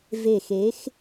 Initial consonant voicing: voiced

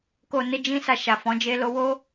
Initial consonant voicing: voiceless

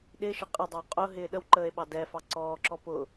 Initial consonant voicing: voiced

